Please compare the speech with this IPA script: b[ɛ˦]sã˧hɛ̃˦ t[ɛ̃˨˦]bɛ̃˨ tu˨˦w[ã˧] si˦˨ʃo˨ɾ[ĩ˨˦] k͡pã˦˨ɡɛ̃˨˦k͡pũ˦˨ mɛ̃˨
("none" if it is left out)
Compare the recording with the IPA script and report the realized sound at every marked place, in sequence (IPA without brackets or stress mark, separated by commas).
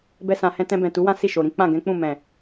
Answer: ɛ˦, ɛ̃˧, ã˦, ĩ˨˦